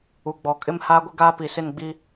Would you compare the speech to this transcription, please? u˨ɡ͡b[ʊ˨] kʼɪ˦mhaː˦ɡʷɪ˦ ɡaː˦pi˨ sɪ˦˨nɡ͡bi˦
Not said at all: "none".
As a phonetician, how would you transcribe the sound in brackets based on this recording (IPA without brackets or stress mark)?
ɔ˨